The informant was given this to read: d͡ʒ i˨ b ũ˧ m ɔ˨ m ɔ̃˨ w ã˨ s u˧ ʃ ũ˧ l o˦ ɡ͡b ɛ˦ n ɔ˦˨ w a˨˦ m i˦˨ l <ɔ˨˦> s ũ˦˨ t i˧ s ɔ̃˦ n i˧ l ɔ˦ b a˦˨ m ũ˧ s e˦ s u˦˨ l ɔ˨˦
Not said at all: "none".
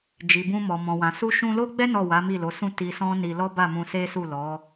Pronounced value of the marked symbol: o˨˦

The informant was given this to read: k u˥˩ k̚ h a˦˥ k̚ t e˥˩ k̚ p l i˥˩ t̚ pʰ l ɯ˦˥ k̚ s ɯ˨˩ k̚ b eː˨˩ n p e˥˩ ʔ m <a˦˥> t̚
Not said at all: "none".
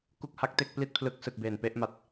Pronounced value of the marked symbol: a˨˩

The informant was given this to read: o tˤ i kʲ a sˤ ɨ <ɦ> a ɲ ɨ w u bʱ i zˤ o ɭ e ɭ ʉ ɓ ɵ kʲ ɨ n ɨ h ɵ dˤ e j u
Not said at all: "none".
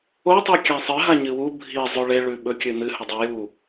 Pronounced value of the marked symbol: ɦ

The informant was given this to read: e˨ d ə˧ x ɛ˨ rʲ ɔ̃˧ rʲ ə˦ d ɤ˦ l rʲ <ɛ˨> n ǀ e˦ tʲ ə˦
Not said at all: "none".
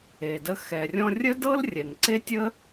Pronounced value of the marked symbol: ɛ˨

